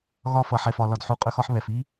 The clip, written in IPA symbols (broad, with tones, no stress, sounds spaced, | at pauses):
ɣ ɒ˧ f ʌ˨ ħ ɛ˨ f ɒ˨ l ɒ˨ d ħ u˨ qʼ ɵ˧ x ɒ˧ ħ β ɛ˨ f i˦